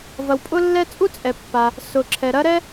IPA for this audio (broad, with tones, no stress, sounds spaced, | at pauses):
v ɐ˩ w pʼ ʊ˥ lː ɛ˥ t͡sʼ u˥ t͡sʼ ɛ˩ pː a˩ | s ʊ˩ ǁʰ ɛ˩ ɾ ɐ˥ ɾ ɛ˥